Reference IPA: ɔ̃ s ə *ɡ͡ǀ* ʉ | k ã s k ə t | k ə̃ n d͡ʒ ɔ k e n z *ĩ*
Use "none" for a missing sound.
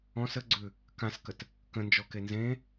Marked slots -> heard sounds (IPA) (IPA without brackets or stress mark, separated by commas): ɡ͡ǀ, ẽ